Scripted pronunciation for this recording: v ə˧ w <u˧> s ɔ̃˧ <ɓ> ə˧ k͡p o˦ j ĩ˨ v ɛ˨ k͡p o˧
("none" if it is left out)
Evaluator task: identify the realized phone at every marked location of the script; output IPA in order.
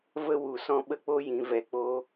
u˨, ɓ

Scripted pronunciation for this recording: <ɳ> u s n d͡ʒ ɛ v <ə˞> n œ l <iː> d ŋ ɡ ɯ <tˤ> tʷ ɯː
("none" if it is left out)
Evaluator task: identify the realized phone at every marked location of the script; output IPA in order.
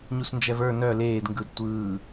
ɲ, ə˞, eː, d

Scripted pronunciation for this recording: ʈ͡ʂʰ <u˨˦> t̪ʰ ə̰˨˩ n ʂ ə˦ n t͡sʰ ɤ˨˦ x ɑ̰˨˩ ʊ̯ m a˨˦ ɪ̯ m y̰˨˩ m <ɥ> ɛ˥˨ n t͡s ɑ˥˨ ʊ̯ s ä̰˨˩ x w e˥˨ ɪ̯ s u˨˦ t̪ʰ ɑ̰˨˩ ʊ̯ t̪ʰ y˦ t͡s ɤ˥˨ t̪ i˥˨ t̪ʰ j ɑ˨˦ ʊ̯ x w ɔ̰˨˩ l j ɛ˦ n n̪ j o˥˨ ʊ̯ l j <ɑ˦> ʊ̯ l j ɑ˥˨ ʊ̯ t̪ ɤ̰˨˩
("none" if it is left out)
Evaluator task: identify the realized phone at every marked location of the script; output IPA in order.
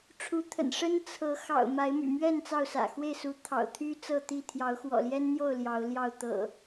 u˨˦, ɥ, ɑ˨˦

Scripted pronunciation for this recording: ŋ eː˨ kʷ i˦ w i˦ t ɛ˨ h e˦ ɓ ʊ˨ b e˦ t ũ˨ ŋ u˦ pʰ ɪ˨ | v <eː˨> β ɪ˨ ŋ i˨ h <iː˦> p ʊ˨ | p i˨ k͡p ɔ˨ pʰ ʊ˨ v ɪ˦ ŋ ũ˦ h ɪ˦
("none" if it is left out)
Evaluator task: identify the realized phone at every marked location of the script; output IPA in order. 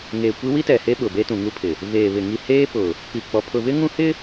eː˨, eː˦

